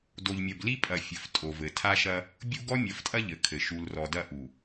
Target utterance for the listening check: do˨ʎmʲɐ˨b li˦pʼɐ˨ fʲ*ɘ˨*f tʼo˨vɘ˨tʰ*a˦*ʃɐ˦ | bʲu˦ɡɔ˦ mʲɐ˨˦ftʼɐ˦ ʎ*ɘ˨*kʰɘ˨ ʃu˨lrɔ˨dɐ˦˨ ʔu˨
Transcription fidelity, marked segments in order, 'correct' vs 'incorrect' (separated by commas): correct, correct, correct